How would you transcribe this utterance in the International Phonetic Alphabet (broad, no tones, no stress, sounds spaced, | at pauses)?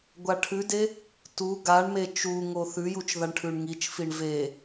ɡʷ a ʈʰ ʉ d e | t u ɡ a ɳ m e t͡ʃ u ŋ o θ ʉ j u t͡ʃ ð a ɳ ʈʰ ʉ ɳ ŋ i t͡ʃ f i ɳ v e